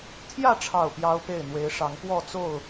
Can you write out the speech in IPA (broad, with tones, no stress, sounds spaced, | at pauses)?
t̪ʰ j ä˥˨ ʈ͡ʂʰ ɑ˥˨ ʊ̯ p j ɑ˦ ʊ̯ p e˥˨ ɪ̯ n̪ w e˨˦ ɪ̯ ʂ ɑ˨˦ ŋ p w ɔ˥˨ t͡s o˥˨ ʊ̯